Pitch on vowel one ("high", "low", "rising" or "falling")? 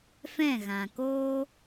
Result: falling